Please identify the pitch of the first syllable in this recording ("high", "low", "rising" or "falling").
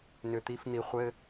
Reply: low